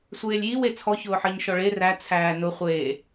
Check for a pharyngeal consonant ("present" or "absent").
present